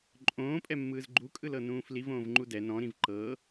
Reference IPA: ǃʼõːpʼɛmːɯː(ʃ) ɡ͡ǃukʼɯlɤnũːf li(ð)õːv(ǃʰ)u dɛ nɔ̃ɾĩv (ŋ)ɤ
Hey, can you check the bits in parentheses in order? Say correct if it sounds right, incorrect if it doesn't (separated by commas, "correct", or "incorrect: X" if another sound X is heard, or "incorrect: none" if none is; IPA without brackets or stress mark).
incorrect: z, incorrect: v, incorrect: ŋ͡ǃ, incorrect: ǃ